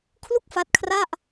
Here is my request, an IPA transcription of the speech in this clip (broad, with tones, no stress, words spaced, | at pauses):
kʰlu˥˩k̚fa˦˥t̚kʰra˥˩ʔ